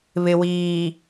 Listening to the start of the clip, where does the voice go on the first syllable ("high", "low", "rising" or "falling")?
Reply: low